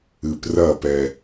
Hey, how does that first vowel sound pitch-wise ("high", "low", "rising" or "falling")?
low